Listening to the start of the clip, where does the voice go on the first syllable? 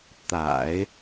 low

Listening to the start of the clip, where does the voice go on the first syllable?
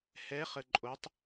rising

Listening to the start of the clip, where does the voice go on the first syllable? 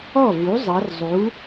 falling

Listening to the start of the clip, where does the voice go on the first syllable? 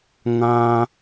high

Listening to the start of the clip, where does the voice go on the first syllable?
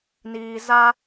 low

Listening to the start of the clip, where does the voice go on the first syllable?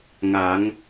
rising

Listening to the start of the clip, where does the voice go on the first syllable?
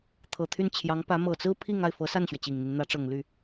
low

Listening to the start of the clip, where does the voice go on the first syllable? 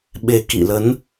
low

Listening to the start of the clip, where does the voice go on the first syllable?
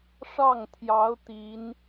falling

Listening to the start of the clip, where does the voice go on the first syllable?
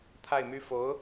falling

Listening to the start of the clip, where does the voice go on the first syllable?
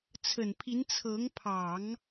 low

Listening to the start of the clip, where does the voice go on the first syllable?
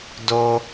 high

